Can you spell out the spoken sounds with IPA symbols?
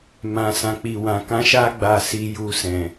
m ã˨ s ã˨ k͡p i˨ w ã˨ k ã˧ ʃ a˦ ɡ͡b a˧ s i˧ j u˧ s ɛ̃˨

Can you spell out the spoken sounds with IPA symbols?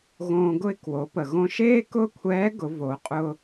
ɣ õː˧ ɡ ʊ˥ ɪ̯ k w o˩˧ p ə˩ ɣ õ˧ ʃ eː˥ k ʊː˥ kʷʰ ɛː˧˥ ɡ ʊ˩˧ v o˩˧ qʼ ʊː˧

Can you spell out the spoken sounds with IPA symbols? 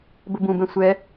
b ə b ũ b ɛ̃ sʷ ɛ

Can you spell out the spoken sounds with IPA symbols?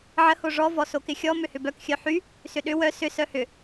ʕ ə h o ʐ ɔ v ɔ s o k ɪ xʲ ɔ m ʏ h ʏ b œ k xʲ œ ħ y | s ʏ ɗ ʏ w œ s ʏ s œ h ʏ

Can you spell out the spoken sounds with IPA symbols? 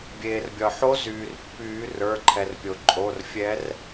bʲ eː˩ r bʲ ɒ˩ ħ o˧˥ z yː˩ r pː yː˨˩˦ r ə˞˩˧˩ ǃʰ ɛ˩ r pʲ o˩ ǃʼ o˩˧˩ r fʲ ɛ˧˥ r

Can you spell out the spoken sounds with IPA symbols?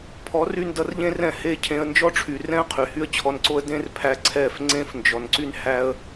pʰ ɔ˨˦ r y˧ n d ʌ˧ r ʎ ẽ˦ r ɛ̃˦˨ h e˦˨ cʰ ẽ˧ ə̯ n d͡ʒ ɔ˦ ʈ͡ʂʰ y˨ r ɛ̃˦ ə̯ qʰ y˨ h y˦ ə̯ t͡ɕʰ ɔ˧ n ǀ o˦ ə̯ d ẽ˦ r pʰ æ˧ ǀʰ ɛ˦˨ f ŋ͡ǀ ẽ˦ f n d͡ʒ ɔ˨ n ǀ y˦ n h æ˦ ə̯

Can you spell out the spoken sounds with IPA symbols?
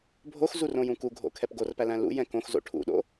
bʱ o x z u r õ j ũ k u ɡʱ o̰ kʰ ɛ p ɡ o r p æ l æ̃ l ṵ j ɛ̃ k õ x z o̰ ʈʰ ṵ ɗ o̰

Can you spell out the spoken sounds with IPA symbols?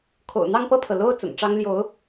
kʰ o̰˨˩ ʊ̯ n̪ ɑ˥˧ ŋ p ɤ˥˩ pʰ ɤ˩ l o˥˩ ʊ̯ t͡s ʊ̰˨˩ ŋ ʈ͡ʂ ɑ˥ ŋ l j o˧˥ ʊ̯

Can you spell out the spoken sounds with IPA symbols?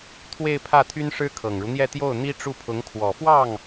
t̪ʰ w e˥˧ ɪ̯ pʰ ä˥˩ t̪ʰ y˥ n ʂ ɻ̩˥ kʰ ɤ˨˩ ŋ ɻ u˦ n̪ j ɛ˥˧ t̪ j o˥˩ ʊ̯ n̪ i˥ ʈ͡ʂ u˥˩ pʰ ʊ˧˥ ŋ kʰ w ɔ˨˩ f w ɑ˥˩ ŋ

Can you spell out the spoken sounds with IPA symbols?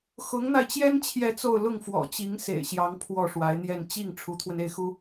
x ʊ˧˥ ŋ n̪ a˧ ɪ̯ t͡ɕ j ɛ˥ n t͡ɕʰ j ɛ˥˧ t͡s o˥˧ ʊ̯ l ʊ˥˩ ŋ f w ɔ̰˨˩ t͡ɕ i˧˥ ŋ s ḛ˨˩ ɪ̯ ɕ j ɑ˧˥ ŋ pʰ w ɔ˥˩ ʂ w a˧˥ ɪ̯ n̪ j ɛ˥˧ n t͡ɕ i˥˩ ŋ ʈ͡ʂʰ u˧˥ t̪ʰ w ə˧ n e˥˩ ɪ̯ x u˥

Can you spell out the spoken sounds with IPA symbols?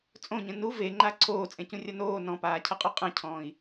t͡sʼ õ ɲ ə̃ n u v e ŋ͡ǃ a ǀʰ oː t͡sʼ ẽ c ũ rʲ ʌ n oː n ɔ̃ p aː cʰ ʌ qʼ o qʼ ə̃ cʰ ɔ̃ː i̯

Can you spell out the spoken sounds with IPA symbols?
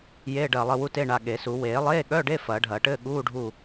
j eː˧˥˧ ɖ ɐː˦˨ lˠ ɘ˦˨ w u˧˥˧ t e˧˥˧ ɳ a˦˨ ɠ e˨˩˦ s u˨˩˦ w eː˨˩˦ lˠ eː˧˥˧ ɠ œ˧˥˧ ɖ e˧˥˧ f ɐː˨˩˦ ɖʱ ɐː˨˩˦ ʈ ɘː˧˥˧ ɠ uː˧˥˧ ɖʱ u˦˨

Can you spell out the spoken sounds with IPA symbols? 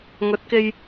ŋ ɵ˨˥ t̚ k e˧ j

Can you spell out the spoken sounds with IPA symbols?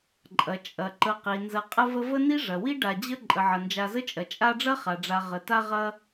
ǃʼ ɐ˩ t͡ʃʼ ɐ˩ ǃ ə˨ q i˩ n z ɐ˨ qʼ ə˦ v ə˦ v ə˥ n i˥ ʐ ɐ˩ w i˥ ɖ a˨ d͡ʑ ə˥ ǃʼ ə˩ ʕ ɐ˩ n d͡ʒ a˨ z ə˦ t͡ʃʼ ɐ˩ t͡ʃʼ a˦ ɖ͡ʐ ɐ˥ χ a˩ ɖ͡ʐ a˨ ʁ ə˩ t a˦ ʁ ɐ˦

